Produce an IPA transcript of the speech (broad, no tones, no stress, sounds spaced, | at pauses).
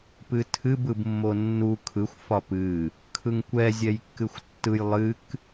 p ɨ tʰ ɨ b ɯ b mː o nː u kʰ ɯ xʷ f ɒ p ɨ | kʰ ɯ ŋ kʷ ɛ zʲ ɛ j kː ɨ xʷ tː ɯ j lˠ ɨ k